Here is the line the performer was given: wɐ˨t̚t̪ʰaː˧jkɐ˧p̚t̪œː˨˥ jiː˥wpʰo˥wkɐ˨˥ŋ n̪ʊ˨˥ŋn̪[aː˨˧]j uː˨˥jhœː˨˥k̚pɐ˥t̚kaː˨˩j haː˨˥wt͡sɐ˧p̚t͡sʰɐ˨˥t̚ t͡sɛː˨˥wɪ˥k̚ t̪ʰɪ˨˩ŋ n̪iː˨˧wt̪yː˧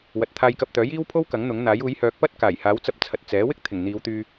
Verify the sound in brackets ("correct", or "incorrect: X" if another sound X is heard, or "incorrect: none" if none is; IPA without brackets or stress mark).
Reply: incorrect: aː˨˥